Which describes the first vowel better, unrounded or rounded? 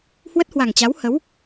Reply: unrounded